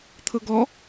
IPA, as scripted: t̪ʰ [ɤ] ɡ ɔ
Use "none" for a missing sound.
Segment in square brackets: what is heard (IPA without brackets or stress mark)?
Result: ɤ